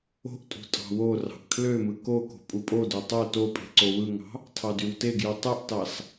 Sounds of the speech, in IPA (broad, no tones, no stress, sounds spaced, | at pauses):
o̤ ʔ tʼ ṳ tʼ ɑ̤ w o r ɑ̤ ʔ kʰ l ø m ɯ k o k o̤ pʼ u pʼ o d ø tˤ o t o pʼ e̤ ǀ o w ɯ ŋ ɑ̤ | tʰ ɑ d y w t e ɡ j ɯ tˤ y ʔ t ɑ s